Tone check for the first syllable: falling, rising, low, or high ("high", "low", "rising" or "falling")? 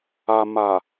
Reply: low